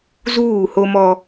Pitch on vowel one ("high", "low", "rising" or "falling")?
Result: falling